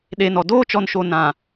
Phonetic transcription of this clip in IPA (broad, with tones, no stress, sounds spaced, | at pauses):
ɗ e˨ n ɔ˨ d oː˦ t͡ʃ ɔ˨ n ʃ o˨ n ã˨